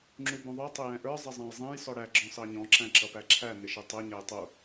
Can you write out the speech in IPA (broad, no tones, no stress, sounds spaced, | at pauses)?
ŋ͡ǁ u b ũ ðˤ ə˞ tˤ ɪ j ɛ̃ ʔ ə˞ zˤ ɪ zˤ æ̃ j zˤ ɛ̃ j s ɔ ɽ æ ɡ͡ǁ ɔ̃ s ɑ ɲ ɔ̃ ǁ æ̃ ǁ ʌ p æ ǁʰ æ n ɪ ʃ ɛ tˤ ɛ ɲ æ j tˤ u